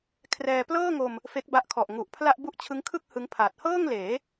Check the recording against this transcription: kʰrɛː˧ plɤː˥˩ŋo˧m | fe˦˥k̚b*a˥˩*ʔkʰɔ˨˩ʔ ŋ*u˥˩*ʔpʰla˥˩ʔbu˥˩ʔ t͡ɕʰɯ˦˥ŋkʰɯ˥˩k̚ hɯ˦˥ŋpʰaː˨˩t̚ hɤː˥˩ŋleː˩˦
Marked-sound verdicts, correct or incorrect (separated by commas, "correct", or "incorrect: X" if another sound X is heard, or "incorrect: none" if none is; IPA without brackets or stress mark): incorrect: a˦˥, incorrect: u˨˩